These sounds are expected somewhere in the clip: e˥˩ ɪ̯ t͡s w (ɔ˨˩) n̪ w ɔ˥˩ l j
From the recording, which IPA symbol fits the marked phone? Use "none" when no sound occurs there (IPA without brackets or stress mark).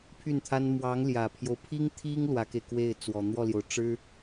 ɔ˨˩